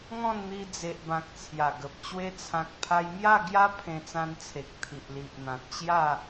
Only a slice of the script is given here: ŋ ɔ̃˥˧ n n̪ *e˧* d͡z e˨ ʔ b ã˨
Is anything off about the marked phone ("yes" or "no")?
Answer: yes